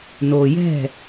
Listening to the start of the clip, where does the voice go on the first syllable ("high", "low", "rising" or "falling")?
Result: low